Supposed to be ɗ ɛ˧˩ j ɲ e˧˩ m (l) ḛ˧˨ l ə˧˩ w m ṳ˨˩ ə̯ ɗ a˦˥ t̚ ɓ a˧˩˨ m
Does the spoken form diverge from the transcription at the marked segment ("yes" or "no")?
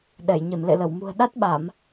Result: no